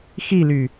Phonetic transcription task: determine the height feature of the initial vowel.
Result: high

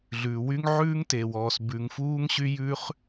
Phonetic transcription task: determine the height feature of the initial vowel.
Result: high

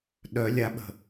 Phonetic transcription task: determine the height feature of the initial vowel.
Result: mid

